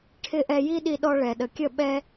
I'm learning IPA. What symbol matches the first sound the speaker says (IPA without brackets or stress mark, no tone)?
ʈʰ